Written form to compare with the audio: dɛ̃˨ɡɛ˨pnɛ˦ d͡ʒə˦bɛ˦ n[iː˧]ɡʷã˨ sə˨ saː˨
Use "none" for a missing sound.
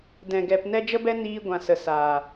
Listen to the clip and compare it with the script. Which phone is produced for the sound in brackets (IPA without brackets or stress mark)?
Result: iː˧